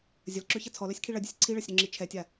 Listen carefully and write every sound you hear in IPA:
zʲ ə l ǁ ø ç ɐ t͡sʰ ɔ l œ sʲ kʰ i ɭ ɐ dʲ ə sʲ ǀʰ i ɭ ɐ sʲ ɾ ø ŋ͡ǁ i t͡ʃʰ ɛ tʲ a

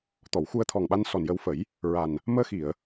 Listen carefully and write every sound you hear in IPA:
t̪ ɔ˨˩˨ w x u˧ ə̯ t̪ʰ ɔ˨˩ ŋ ɓ a˧ n s ɔ˨˩ n j ə˧ w f ə˨˩˦ j | ɹ a˨˩ n | m əː˧ x i˨˩˨ ə̯

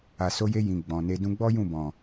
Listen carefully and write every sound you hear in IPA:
a˨ s o˧ j e˧ j ĩ˨ ɡ͡b ɔ̃˨ n e˧ d ũ˧ ɡ͡b ɔ˦ j ũ˦˨ b ɔ̃˨

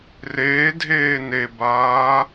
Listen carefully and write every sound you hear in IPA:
r eː dʱ eː n e b aː

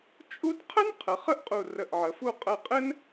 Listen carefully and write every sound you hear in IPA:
t͡ʃʼ u˥ d qʰ ə˥ n qʰ ə˩˧ χ ə˥ ʔ qʼ u˧˩ r ə˧˩ ʔ ʕ ə˩˧ f u˥˧ qʼ ə˧˩ qʼ ɘ˥ n

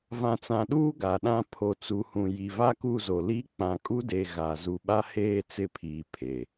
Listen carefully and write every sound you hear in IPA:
v ã˨ t͡s ã˨ ɗ uː˦ ɡ a˨ ɗ ã˦ pʰ o˨ t͡s u˨ h ũ˨ j i˨ v a˦ k u˦˨ z o˨ l i˦ k͡p ã˨ kʼ u˦ d e˨ ɣ a˨ z u˨ ɓ a˦ h eː˦˨ t͡s ɪ˦ pʰ iː˨ pʰ e˨

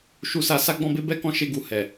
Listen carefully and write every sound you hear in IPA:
ʃ u˧ s a˧ s a˦ ɡ͡b ɔ̃˦ b e˦ b ɛ˦ k ɔ̃˦˨ ʃ e˧ ɡ u˨ h ɛ˨

